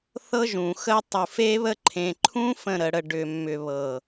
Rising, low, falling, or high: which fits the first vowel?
high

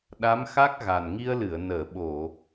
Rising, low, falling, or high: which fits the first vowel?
rising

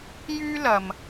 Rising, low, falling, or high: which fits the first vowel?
high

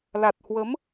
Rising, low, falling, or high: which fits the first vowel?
low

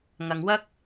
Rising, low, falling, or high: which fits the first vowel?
low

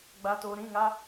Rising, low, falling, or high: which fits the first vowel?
low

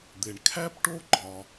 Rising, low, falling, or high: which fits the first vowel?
low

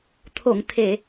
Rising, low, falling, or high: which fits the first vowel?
low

